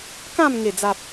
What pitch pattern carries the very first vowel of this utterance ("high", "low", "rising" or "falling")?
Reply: falling